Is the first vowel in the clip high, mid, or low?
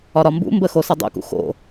low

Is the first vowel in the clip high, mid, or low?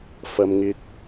low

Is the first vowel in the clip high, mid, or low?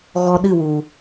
mid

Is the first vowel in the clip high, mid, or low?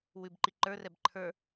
high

